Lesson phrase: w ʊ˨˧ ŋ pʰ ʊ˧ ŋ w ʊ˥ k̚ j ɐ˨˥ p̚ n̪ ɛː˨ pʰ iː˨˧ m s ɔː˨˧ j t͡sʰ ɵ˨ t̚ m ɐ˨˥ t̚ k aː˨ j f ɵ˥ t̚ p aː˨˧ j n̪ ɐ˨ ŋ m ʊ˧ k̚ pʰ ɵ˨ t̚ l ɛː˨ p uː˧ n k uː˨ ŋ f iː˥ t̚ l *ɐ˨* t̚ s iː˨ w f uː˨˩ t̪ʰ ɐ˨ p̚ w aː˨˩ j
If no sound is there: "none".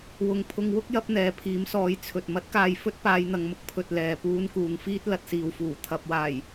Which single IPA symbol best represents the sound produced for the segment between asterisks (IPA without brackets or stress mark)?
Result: ɐ˨